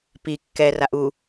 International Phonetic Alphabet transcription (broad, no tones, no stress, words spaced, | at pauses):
pi kːɛraʔ u